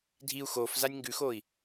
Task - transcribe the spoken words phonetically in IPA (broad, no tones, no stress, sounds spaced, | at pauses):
dʱ i u̯ x o f z a nʲ ŋ ɡ ʉ x oː i̯